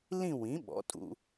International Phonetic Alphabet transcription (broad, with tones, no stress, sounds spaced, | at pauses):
l ĩ˥˧ w ĩ˩˥ ɓ ɔ̰˩˥ tʼ ṵ˧